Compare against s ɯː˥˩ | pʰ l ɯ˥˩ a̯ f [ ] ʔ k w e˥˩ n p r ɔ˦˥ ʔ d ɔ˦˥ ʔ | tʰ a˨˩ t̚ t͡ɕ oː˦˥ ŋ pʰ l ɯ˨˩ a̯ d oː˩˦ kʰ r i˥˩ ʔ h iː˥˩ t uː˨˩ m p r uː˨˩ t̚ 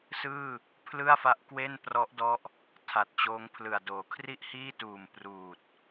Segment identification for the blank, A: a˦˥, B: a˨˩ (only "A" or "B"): A